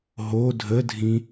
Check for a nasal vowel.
present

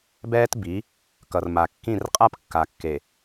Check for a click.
absent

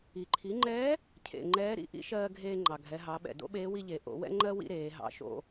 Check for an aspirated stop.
present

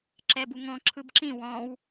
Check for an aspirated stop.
present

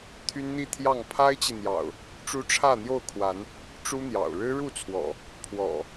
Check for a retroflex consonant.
present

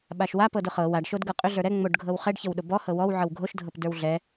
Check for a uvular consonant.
present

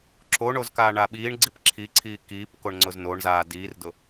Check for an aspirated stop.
present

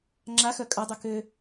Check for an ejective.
present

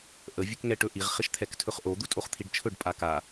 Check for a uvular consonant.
present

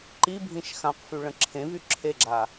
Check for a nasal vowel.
present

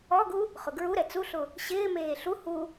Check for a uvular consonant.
present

